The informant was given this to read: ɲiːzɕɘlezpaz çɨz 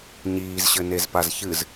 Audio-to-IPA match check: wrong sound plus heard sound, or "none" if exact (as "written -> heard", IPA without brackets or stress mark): l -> n